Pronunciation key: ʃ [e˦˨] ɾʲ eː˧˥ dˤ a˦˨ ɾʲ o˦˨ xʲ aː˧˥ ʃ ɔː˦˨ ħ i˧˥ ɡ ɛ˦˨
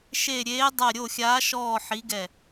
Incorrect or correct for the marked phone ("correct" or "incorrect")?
correct